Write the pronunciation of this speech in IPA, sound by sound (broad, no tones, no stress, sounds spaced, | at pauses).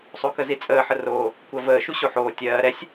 sˤ o k ə z i t͡sʼ əː ħ ə r oː | kʷ ɜ v əː ʃ u ɕ o ħ oː tʲ ɜː ɾ ɛ sʲ